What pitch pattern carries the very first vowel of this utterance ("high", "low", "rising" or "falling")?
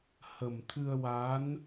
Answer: low